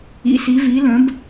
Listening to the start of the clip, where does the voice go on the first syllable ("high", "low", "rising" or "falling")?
rising